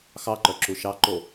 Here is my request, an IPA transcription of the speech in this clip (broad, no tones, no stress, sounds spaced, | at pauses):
x ɑ ǃ œ ǁ u ʃ ɑ ǃ o